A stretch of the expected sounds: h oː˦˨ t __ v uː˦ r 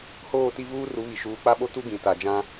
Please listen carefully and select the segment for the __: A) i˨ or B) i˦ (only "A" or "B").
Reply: B